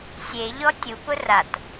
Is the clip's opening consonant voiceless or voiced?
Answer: voiceless